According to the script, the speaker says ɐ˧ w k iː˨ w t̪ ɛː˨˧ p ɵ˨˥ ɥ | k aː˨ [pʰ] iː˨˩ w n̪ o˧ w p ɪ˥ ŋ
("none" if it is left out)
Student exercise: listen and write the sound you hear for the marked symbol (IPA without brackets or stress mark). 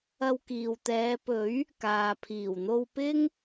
pʰ